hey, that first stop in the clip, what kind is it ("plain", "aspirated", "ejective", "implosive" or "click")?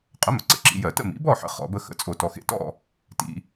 ejective